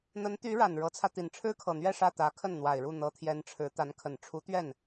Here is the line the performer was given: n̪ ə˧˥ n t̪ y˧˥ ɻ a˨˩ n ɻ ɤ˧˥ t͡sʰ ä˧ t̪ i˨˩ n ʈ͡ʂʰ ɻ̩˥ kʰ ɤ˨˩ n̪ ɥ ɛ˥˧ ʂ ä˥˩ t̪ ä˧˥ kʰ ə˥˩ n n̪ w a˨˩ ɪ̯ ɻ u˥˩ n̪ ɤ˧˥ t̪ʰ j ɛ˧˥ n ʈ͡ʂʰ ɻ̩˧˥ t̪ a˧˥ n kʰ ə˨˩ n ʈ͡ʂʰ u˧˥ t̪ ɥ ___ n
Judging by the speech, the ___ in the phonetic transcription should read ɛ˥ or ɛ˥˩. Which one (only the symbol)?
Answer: ɛ˥˩